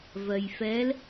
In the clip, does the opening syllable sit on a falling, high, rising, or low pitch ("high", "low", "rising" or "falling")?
low